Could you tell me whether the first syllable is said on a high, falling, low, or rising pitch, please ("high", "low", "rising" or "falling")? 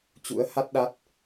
rising